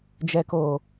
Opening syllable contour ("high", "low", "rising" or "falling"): low